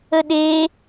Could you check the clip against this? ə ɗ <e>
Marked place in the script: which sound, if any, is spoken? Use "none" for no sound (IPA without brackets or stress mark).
e